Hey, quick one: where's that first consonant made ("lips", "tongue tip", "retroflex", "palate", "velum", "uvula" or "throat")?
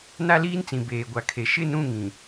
tongue tip